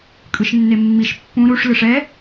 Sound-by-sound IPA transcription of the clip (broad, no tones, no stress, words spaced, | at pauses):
kʼɯʃnːemːiʃ pːũ ɾuʂ lɯʂɛ